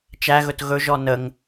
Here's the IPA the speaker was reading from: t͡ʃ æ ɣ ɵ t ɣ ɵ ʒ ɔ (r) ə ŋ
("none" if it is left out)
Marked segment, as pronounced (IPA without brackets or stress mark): n